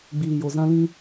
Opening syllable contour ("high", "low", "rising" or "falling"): low